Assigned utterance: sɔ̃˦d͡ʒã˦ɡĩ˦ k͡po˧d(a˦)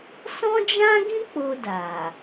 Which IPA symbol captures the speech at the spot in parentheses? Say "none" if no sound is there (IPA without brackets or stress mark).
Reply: a˨